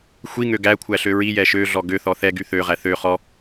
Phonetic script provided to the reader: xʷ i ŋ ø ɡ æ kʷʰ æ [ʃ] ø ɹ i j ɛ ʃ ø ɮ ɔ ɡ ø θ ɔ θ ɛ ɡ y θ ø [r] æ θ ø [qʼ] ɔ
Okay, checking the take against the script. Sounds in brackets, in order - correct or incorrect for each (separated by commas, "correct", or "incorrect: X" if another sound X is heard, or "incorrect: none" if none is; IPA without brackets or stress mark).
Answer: incorrect: ɬ, incorrect: ʁ, incorrect: χ